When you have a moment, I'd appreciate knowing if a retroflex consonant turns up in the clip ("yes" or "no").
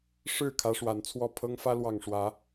yes